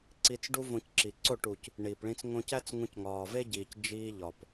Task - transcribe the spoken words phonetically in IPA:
ǀ i˧ t͡s ɖ u˦ v õ˧ c ǁ i˨ ǀ o˦˨ ʈ u˨ c | ɳ iː˨ p ɭ ĩ˧ t͡s ŋ õ˧ c æ˦ t͡s ŋ ũ˧ c ŋ ɒː˨ v e˦ ɟ iː˨ c d͡ʒ iː˧ ʎ ɒ˨ p

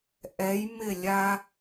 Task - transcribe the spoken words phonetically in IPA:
ʔ ɛ˩˧ j m ɪ˧˩ lʲ a˧

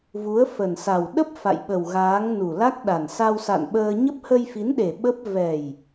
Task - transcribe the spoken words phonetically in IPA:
v u˨˦ ə̯ f ə˨˩ n s a˨˩ w ɗ ə˦˥ p̚ f a̰˧˨ j ɓ ə˨˩ w ɣ aː˨˦ ŋ n u˨˩ l a˦˥ k̚ ɗ a˨˩ n s a˧ w s a̰˧˨ n ɓ əː˧ ɲ ə˦˥ p̚ h ə˧ j f i˨˦ n ɗ e˨˩ ɓ ə˦˥ p̚ v ɛ˨˩ j

